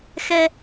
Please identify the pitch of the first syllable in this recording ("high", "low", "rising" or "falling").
high